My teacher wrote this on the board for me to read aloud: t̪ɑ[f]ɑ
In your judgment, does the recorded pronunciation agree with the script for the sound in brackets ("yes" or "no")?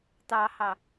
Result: no